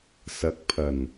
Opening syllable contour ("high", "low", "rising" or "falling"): rising